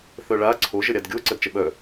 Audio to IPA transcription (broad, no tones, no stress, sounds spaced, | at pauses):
θ œ ɭ a ǀʰ o ʒ ə ɾʲ a d ɡʲ o ǀ ə d t͡ʃ ə ɓ œ